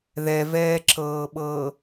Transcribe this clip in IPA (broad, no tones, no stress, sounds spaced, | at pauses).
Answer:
ð ɛ v ɛː ǁ ɤː ɓ ɤː